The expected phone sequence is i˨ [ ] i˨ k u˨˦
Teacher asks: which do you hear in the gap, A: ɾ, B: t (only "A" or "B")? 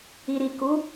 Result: A